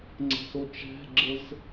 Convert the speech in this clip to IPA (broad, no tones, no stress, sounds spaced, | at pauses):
ŋ͡ǀ æ̤ s o t͡ʃ æ̤ ɡ͡ǁ ə z